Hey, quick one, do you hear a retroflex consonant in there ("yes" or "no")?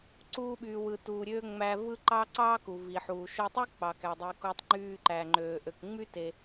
no